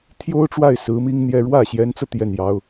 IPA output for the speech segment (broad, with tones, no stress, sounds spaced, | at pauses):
t̪ʰ j o˥ ʊ̯ ʈ͡ʂ w a˥˩ ɪ̯ s ɹ̩˧˥ m i˥ ŋ n̪ j ɛ˥˧ ɻ w ä˥˩ ɕ j ɛ˧˥ n t͡s ɤ˧ t̪ j ɛ˥˩ n j ɑ˧˥ ʊ̯